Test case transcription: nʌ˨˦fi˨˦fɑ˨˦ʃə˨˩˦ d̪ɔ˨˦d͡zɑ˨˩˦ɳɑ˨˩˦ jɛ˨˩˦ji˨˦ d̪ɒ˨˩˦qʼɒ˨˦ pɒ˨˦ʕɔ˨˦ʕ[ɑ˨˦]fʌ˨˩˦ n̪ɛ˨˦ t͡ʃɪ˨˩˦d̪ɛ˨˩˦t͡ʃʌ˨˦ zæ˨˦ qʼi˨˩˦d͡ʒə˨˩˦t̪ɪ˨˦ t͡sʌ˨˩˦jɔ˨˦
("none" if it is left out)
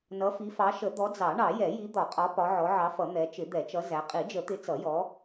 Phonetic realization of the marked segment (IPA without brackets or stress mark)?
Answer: ɑ˨˦